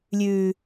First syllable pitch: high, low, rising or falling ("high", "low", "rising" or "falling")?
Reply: low